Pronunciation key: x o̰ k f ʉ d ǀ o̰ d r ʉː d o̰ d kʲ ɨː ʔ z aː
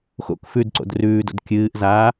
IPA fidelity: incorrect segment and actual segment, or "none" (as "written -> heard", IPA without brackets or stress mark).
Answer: none